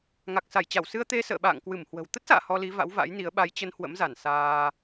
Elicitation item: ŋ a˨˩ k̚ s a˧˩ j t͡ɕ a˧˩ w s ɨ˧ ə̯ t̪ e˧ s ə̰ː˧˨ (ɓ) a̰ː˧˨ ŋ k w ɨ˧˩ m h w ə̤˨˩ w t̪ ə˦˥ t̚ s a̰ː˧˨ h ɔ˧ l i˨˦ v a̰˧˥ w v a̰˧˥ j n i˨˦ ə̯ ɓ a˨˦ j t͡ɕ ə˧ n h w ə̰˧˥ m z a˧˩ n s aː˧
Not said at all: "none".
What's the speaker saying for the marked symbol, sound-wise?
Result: ɓ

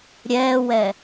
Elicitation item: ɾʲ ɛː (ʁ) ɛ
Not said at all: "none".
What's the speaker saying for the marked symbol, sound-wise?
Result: w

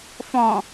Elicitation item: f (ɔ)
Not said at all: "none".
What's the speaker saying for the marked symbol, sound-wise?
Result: ɔ̃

